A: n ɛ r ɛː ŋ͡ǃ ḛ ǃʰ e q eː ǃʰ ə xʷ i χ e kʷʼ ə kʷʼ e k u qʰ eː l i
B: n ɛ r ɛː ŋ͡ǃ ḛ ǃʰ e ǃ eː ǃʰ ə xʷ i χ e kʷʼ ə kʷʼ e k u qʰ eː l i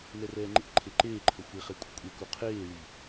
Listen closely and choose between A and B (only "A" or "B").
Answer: B